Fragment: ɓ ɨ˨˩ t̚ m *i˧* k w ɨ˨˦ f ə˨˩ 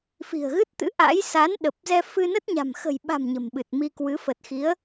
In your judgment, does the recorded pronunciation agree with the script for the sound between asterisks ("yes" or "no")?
yes